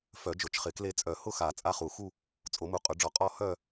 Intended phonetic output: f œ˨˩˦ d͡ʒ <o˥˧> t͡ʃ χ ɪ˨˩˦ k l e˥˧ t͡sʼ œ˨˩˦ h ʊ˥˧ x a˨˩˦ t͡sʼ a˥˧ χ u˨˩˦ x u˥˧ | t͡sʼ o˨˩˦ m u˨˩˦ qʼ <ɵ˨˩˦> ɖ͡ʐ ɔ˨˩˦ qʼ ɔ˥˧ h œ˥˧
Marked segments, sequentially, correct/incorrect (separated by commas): incorrect, incorrect